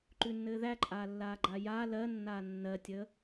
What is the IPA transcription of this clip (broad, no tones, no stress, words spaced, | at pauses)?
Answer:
ǃʉnːɘːðæǃʼaː lːaːɡ͡ǃajaː lɜnːaː nːɜtʲəː